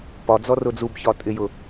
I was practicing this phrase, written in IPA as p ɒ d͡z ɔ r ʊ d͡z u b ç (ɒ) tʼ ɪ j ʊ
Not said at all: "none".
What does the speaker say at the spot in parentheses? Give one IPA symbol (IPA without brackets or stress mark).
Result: ɒ